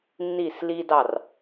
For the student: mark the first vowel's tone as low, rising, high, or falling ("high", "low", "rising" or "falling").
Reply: falling